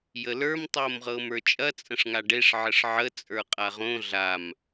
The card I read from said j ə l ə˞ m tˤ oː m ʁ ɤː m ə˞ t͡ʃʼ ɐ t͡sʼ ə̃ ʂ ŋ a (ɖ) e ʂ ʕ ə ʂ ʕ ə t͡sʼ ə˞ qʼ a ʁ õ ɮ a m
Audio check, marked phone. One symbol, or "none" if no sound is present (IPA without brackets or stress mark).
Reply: ɖ